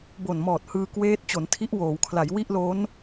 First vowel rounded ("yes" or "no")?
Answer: yes